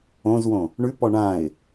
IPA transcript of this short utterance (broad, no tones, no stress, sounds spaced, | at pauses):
õ z w õ | ɳ ʉ p ɔ ɳ ã ɪ̯